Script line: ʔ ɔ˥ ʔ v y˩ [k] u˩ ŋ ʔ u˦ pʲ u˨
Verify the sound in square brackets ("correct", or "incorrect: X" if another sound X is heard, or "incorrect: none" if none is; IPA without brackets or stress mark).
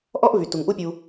incorrect: t